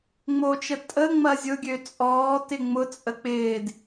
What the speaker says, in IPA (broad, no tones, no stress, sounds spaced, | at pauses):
ŋ͡m o t͡ʃ ə tʼ ə ŋ͡m ɐ zʲ ʊ ɡʲ ø t͡sʼ ɔː t ɪ ŋ͡m ʊ t͡sʼ ə k͡p ɪː d